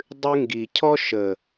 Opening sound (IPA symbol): dˤ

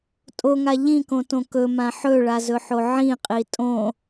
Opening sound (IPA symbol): tʼ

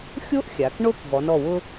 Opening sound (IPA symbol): xʲ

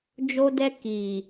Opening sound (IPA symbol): d͡ʒ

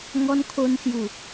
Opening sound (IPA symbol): ŋ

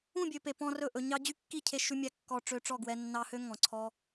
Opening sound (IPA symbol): ũ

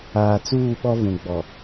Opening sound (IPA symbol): aː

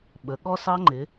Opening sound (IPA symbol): ɓ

